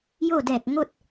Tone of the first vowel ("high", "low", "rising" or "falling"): falling